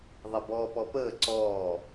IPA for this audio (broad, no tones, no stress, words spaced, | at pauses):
ðˤɛbɔːpɔpəː ǀɔː